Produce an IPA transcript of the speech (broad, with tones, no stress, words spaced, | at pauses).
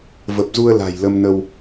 və˨˩p̚zu˧ə̯ la̤˨˩jlə˧mnə˧w